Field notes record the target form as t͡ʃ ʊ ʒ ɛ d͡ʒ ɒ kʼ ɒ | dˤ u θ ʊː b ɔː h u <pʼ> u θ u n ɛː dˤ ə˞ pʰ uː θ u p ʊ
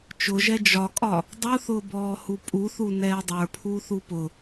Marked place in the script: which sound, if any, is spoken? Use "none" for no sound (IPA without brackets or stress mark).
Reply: pʼ